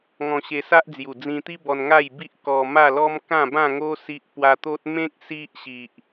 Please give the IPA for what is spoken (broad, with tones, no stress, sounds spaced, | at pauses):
ŋ ɔ̃˧ ɕ e˧ s a˦ ʔ d͡z j u˨˩ d͡z ĩ˧ t̪ i˦ b ɔ˧ n ŋ a˥˧ j b i˦ ʔ k ɔ˧ m a˥˧ l ɔ˦ m k ã˥˧ b ã˥˧ ŋ o˦ s i˦ ʔ p w a˦ t̪ o˦ t̚ m ẽ˦ k̚ s i˦ ʔ ɕ i˨ ʔ